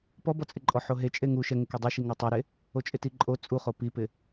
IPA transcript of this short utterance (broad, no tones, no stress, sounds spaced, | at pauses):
p ɔ b ɔ t͡sʼ ɪ ǃʼ ɔ ħ o ɦ e t͡ʃʼ e ŋ u ʃ ɛ ŋ ɪ k e dˤ i ʃ i ŋ ɔ tˤ e ɾ e | o t͡ʃʼ ɪ t i ǃʼ o t͡sʼ u χ o p i p ɪ